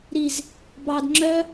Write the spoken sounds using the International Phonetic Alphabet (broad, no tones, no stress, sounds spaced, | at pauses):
ɾ i z | b ɑ d ŋ͡ǁ œ